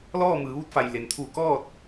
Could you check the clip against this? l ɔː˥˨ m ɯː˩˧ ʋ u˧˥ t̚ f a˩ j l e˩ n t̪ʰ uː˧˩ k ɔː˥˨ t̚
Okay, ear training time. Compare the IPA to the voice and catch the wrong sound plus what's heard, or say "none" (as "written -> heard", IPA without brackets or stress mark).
none